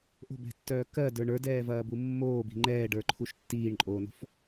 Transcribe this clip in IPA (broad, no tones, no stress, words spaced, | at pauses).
ʔo̤bɛ̤tːœː kɜdə˞ ɳə˞dɛːvɐːbu mːoːbi̤ ŋ͡ǃɛːɖə˞ǃʰuʃ tːiːɳǃʼoːno̤f